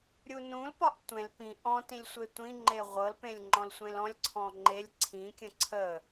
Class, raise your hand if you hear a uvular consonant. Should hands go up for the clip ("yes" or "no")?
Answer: yes